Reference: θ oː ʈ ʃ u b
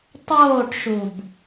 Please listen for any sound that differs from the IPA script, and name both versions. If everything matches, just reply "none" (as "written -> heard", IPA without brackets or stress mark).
θ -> tˤ